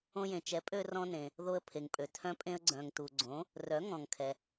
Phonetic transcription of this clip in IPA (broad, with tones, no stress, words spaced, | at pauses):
õ˧jẽ˩ t͡ʃɛ˩˥pʼø˧ rɔ̃˧nẽ˩ | ðo˧ə̯pʰe˩ŋpʼø˩ tʰœ̃˧pʼẽ˧ə̯ɡ͡ǀœ̃˩ŋ tu˩ɡ͡ǀõ˩˥ | rœ˩˥ŋɔ̃˩ŋkʰɛ˩